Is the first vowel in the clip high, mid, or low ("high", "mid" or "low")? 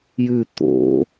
high